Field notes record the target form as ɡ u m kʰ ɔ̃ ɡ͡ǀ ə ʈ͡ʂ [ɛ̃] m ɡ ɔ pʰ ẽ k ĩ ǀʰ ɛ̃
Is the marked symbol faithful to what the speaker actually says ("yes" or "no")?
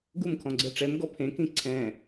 no